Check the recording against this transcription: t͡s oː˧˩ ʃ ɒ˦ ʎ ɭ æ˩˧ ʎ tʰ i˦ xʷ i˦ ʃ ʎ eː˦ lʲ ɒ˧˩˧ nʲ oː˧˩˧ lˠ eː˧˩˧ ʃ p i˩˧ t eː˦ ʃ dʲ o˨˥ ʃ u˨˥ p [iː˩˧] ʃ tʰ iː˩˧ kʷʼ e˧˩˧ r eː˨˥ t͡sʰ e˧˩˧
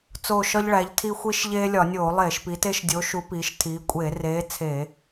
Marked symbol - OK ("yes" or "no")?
yes